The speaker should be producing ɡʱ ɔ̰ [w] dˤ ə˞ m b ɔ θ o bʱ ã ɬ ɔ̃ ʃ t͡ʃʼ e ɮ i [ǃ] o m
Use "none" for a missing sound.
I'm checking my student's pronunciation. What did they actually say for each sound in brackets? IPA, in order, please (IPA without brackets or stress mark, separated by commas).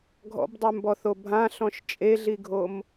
b, ɡʱ